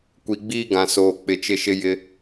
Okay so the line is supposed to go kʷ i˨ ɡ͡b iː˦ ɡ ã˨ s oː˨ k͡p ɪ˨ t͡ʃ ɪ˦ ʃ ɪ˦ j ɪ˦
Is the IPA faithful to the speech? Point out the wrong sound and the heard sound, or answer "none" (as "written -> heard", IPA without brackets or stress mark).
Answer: none